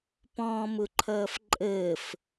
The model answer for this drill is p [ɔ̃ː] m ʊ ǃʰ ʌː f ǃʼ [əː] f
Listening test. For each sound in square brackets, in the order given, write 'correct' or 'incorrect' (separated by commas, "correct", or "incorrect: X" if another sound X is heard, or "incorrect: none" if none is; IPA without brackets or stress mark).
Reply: correct, correct